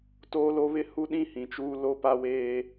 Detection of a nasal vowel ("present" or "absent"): present